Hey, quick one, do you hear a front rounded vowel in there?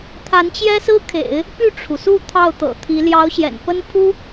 yes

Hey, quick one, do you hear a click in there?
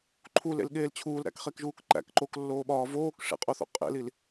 yes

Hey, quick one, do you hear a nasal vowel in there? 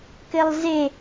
no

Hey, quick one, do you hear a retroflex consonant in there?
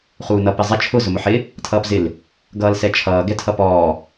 no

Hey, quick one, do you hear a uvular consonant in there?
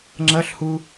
no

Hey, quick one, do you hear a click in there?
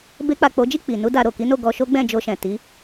no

